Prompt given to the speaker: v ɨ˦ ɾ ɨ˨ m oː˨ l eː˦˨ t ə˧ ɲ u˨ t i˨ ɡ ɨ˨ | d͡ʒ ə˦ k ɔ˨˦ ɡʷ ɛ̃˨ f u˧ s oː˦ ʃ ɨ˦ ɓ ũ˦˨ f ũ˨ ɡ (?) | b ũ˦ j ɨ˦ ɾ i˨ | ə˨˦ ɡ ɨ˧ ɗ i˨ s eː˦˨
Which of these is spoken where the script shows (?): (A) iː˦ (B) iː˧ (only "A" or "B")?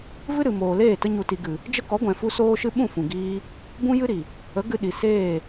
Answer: B